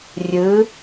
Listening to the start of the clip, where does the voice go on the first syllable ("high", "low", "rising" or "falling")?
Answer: rising